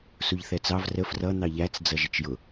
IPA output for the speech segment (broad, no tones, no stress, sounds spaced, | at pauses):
s u ʎ θ ɛ t͡s ɑ v r ə f r ʌ n̪ ɑ ʎ æ t͡s d͡z ʌ ʒ ɪ t͡ʃ j ʊ